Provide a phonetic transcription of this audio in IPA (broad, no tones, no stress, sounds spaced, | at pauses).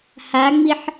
h a ŋ͡m i ħ